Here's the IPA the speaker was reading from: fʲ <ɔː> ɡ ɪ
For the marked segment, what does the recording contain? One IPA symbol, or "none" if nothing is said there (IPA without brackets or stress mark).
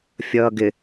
ʌː